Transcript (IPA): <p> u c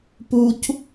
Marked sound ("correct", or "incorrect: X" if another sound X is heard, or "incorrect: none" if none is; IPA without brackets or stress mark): correct